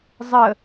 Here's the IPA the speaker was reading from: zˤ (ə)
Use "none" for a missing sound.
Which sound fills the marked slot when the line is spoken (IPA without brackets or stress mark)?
ə